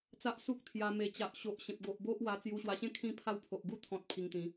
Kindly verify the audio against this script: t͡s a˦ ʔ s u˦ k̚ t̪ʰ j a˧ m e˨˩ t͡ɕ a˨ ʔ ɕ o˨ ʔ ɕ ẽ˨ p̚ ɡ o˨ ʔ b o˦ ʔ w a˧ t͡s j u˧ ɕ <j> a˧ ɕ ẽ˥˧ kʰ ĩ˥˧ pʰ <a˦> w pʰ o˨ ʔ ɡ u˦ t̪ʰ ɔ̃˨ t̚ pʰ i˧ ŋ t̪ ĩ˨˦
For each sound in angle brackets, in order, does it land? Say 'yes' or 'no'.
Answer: no, no

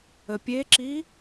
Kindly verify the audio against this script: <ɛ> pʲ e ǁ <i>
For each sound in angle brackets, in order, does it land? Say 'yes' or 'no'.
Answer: no, yes

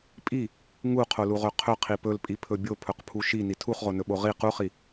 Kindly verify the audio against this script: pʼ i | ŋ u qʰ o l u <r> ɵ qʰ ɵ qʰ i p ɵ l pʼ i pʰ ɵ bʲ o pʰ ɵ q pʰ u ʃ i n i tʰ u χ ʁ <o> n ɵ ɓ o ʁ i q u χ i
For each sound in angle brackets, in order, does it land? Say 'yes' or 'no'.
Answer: no, yes

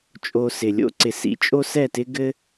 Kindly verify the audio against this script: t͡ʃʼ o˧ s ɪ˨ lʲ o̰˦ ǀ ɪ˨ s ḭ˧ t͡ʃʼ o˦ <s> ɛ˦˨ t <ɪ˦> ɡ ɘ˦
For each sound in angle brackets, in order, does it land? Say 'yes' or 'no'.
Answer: yes, yes

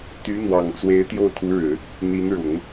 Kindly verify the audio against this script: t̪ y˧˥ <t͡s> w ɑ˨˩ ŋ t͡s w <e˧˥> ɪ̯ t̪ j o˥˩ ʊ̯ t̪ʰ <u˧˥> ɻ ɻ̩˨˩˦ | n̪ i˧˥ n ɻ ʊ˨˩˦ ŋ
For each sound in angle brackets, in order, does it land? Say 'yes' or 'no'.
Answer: no, yes, yes

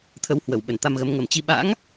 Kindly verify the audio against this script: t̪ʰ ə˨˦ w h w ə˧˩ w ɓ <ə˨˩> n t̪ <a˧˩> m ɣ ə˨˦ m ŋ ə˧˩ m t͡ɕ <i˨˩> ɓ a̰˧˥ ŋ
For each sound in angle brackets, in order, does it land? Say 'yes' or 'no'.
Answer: no, no, no

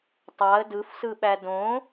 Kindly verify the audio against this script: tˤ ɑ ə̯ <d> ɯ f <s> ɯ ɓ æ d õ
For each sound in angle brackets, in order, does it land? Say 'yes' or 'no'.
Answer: yes, yes

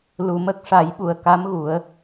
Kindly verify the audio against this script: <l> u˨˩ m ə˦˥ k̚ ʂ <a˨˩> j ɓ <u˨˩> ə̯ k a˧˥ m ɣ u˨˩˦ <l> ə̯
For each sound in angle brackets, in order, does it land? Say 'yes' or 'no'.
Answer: yes, no, yes, no

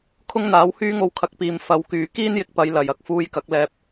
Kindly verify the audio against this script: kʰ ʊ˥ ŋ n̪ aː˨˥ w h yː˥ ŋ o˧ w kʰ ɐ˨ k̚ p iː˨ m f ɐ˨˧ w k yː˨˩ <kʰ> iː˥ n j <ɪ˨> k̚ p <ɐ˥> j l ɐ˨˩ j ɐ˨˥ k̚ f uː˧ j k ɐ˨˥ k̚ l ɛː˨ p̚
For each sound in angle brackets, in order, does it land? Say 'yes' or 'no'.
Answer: no, yes, no

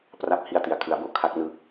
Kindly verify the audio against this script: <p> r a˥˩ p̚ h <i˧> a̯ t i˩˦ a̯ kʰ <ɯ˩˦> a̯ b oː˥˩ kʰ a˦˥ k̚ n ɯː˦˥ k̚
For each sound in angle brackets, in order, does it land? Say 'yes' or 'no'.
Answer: yes, yes, yes

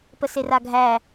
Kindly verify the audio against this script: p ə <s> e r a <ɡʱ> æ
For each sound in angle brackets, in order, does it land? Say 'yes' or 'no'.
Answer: yes, yes

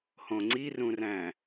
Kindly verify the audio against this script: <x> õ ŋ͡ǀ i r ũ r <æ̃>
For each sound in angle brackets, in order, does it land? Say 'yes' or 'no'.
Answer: no, yes

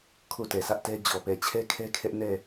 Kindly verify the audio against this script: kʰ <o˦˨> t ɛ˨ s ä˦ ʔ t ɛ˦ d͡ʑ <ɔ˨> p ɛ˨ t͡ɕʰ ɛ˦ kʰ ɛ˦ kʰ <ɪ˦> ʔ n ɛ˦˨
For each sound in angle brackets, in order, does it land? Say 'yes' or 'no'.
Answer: yes, yes, no

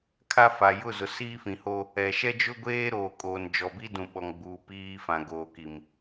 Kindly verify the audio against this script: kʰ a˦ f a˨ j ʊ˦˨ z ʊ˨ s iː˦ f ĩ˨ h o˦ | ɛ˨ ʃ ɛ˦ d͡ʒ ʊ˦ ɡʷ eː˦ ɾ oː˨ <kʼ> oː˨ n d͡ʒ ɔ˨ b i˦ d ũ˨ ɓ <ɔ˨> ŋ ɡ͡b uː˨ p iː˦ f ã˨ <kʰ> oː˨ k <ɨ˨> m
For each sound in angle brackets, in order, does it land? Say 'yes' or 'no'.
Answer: yes, yes, no, no

